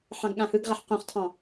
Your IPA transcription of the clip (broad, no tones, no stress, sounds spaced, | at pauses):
ħ ɑ̃ ɡ ɠ ã h ɯ ɡ ʁ a ħ q ũ χ tʰ ɑ̃